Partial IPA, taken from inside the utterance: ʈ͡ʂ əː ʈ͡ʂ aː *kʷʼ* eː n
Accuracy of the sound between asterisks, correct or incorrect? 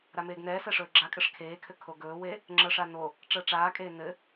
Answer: incorrect: kʼ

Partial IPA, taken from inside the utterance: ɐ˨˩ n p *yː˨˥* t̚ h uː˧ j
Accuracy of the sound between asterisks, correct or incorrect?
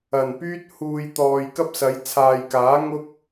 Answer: incorrect: yː˥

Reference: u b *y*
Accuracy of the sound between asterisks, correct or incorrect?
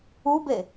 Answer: incorrect: e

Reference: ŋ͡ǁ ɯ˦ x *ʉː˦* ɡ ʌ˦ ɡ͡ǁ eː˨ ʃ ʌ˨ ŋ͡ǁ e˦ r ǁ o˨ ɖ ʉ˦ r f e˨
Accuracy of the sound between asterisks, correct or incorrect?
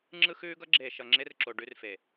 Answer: correct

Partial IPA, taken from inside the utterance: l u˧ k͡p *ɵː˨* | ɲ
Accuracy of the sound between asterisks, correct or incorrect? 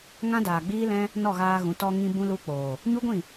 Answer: incorrect: oː˨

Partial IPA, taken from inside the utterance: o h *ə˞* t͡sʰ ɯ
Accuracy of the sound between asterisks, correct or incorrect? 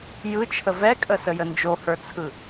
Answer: correct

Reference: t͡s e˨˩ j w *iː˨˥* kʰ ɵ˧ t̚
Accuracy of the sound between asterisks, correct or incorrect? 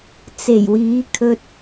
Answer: correct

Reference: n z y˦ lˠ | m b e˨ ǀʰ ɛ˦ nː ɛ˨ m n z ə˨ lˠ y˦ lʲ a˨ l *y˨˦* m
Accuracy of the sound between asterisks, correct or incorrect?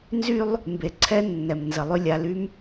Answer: incorrect: y˦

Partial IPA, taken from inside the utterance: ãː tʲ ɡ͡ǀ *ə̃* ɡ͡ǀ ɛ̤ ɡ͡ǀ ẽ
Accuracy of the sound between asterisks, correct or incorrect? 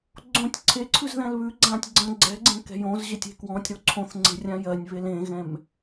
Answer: correct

